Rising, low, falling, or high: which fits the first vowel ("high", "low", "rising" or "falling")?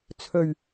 low